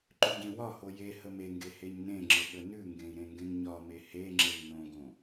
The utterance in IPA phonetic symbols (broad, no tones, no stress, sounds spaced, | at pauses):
ǃ ʉ ɟ ẽ w ɒ h o j e h ə m e ŋ ɡ e h e ɲ n ẽ ŋ͡ǁ ɘ ɠ ə n ʉ ŋ ɡ ẽ i̯ ɾ ẽ ŋ ɡ ẽ ŋ ɲ ɒ m e h e ŋ͡ǁ e ŋ n õ ɡ õ